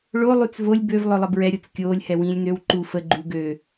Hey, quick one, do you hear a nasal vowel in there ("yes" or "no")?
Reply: yes